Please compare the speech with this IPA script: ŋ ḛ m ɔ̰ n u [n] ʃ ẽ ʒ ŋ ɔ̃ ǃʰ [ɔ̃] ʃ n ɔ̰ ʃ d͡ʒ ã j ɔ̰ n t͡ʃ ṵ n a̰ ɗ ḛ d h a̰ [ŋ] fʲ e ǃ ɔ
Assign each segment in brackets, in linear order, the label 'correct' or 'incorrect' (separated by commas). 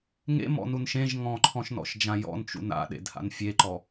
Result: correct, correct, incorrect